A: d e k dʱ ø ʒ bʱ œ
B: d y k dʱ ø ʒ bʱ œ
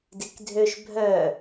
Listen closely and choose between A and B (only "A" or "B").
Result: A